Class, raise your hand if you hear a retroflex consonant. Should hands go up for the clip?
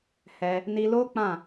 no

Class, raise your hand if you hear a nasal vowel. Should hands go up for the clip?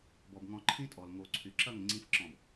yes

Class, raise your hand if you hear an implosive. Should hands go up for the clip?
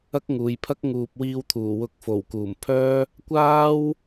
no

